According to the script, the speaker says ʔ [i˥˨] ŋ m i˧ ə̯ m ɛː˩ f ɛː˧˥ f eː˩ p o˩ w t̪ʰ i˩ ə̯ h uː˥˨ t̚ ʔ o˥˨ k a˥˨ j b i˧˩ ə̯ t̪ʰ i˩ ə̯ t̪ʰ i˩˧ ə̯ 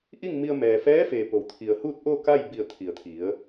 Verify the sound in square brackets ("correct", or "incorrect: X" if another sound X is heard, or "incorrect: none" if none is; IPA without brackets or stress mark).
correct